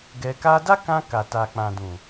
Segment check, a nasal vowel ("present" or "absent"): present